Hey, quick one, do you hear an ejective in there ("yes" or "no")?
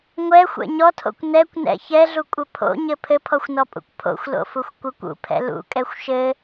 yes